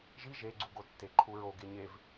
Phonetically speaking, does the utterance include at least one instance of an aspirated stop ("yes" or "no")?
yes